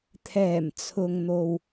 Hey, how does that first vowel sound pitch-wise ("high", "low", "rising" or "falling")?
low